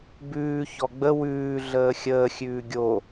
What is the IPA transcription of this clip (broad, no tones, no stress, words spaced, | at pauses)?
bʉː çɔɡ͡bə wʉː ɮəːxʲəː xʲʉːɡʲo